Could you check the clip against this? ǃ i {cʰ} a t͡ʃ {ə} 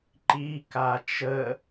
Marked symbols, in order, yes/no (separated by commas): no, yes